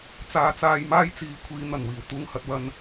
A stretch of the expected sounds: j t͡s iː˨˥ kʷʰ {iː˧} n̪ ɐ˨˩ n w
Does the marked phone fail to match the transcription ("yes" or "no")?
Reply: yes